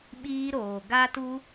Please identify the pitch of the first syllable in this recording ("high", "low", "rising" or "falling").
high